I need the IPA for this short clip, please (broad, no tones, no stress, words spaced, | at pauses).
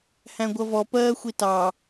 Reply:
hæ̃ɡʷʌvɔ pɜːxʷitɑ